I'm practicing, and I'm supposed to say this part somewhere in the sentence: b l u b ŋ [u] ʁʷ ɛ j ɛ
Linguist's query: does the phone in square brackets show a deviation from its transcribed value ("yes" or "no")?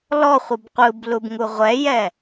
no